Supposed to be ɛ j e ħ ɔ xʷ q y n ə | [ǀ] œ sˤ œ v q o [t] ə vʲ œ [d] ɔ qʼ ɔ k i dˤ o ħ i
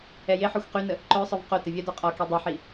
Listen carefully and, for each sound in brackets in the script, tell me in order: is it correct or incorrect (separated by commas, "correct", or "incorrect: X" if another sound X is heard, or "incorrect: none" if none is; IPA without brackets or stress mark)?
incorrect: ǃ, correct, correct